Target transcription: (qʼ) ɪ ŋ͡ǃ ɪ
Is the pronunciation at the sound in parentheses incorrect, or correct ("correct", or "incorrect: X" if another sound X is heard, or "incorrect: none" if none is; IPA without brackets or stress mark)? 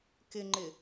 incorrect: k